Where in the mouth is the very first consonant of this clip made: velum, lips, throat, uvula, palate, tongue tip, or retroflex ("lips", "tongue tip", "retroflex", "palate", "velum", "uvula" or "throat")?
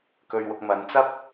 velum